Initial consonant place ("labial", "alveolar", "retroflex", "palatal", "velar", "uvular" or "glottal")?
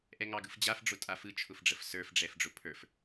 glottal